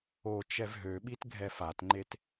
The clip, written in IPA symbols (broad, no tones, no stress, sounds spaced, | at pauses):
o t͡ʃ ɛ v ɦ ø ɓ i t ɡʱ ɛ f a t ŋ͡ǃ e t